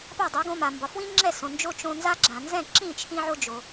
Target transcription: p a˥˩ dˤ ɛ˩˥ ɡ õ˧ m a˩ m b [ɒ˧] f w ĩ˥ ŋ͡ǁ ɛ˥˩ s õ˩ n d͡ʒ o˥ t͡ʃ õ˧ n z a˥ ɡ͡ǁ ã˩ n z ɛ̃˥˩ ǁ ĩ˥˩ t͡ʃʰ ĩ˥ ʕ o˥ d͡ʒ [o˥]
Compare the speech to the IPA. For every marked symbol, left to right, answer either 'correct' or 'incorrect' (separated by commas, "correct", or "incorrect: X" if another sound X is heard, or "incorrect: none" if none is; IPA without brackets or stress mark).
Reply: incorrect: ɒ˩, incorrect: o˩